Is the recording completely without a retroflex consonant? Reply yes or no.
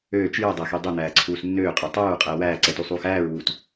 yes